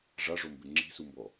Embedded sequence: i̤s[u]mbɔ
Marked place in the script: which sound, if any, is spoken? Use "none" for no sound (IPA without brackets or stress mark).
u